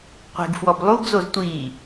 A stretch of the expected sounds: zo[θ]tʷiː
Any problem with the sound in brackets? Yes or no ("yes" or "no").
yes